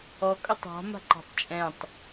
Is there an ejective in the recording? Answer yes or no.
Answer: yes